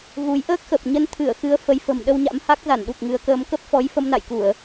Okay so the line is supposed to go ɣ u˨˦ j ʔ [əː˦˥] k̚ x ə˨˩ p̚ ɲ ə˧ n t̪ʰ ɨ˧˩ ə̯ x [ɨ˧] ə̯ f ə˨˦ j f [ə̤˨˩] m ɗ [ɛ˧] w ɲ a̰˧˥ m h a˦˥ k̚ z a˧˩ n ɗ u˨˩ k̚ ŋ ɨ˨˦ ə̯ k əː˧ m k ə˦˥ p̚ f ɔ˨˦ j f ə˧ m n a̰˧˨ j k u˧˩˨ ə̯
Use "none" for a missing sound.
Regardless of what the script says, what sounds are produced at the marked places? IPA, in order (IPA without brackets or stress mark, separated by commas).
əː˦˥, ɨ˨˦, ə̤˨˩, ə˧